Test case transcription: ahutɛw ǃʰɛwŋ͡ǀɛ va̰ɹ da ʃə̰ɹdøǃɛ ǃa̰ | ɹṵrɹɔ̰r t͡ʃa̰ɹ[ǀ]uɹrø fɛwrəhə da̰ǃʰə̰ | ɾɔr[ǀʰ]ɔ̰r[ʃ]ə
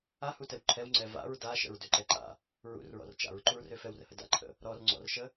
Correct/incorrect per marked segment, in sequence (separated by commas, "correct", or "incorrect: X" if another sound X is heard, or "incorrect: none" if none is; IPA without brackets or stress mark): incorrect: ǃ, incorrect: ŋ͡ǀ, correct